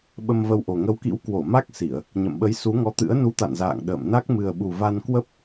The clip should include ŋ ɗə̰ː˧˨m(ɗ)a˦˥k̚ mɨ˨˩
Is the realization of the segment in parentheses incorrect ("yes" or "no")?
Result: yes